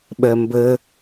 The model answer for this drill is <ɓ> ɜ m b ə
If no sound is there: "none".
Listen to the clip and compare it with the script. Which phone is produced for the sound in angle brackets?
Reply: ɓ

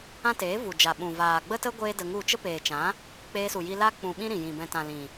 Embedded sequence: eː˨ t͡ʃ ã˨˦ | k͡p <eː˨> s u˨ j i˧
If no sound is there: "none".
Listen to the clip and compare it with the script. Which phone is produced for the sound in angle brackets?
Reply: eː˧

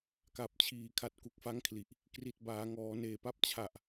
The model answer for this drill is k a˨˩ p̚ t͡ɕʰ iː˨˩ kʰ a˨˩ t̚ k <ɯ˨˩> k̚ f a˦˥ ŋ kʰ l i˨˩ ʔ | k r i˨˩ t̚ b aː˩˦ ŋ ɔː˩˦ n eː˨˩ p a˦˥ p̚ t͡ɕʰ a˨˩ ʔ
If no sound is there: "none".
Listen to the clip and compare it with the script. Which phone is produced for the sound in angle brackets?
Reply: u˨˩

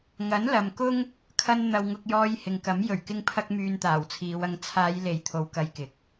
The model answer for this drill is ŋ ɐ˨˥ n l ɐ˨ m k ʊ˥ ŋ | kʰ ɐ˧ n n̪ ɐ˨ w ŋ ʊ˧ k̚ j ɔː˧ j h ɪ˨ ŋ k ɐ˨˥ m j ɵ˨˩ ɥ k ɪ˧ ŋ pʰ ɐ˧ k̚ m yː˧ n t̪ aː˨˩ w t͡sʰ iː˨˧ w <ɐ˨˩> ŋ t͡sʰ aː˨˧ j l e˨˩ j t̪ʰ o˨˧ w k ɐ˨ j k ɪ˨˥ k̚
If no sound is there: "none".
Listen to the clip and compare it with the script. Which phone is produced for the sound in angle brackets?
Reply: ɐ˧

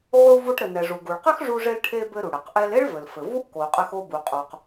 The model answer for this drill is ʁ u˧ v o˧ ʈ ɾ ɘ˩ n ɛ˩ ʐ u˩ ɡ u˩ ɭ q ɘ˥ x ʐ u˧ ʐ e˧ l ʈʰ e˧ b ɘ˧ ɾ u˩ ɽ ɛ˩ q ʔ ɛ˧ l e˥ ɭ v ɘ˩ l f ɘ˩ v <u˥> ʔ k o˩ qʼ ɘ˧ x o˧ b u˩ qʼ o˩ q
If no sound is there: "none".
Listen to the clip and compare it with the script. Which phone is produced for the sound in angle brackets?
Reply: u˥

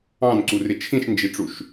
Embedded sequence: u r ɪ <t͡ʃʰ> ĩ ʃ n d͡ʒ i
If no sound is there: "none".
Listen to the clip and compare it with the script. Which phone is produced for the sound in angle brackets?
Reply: t͡ʃʰ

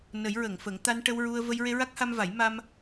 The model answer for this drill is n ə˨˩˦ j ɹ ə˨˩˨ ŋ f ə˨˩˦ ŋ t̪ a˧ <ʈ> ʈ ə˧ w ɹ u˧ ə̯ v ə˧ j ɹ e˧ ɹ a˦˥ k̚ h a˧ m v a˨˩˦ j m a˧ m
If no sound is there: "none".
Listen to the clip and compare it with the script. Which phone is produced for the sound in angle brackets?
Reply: n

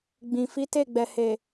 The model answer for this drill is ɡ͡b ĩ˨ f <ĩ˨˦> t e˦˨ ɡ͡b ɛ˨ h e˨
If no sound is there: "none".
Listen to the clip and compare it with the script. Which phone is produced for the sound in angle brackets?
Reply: i˨˦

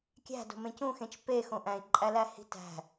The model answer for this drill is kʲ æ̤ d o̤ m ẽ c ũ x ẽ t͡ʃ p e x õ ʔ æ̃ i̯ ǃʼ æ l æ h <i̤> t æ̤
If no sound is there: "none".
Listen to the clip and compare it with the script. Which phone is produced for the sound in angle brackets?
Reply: i̤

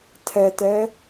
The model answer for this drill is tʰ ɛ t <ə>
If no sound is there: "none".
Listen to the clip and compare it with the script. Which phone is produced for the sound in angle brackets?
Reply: ɛ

